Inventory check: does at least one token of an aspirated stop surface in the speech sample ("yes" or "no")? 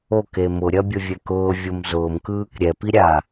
no